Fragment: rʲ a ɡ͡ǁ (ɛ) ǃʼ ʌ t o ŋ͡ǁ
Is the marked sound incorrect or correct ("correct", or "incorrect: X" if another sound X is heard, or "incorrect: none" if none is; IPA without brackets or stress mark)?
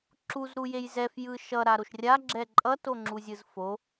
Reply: correct